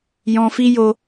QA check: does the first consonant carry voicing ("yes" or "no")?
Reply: yes